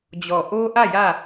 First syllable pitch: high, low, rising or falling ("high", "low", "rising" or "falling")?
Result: low